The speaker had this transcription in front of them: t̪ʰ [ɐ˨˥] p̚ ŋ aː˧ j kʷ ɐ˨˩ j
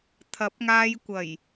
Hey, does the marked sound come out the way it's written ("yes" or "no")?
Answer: yes